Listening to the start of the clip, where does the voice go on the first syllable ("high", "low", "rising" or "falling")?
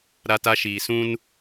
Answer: high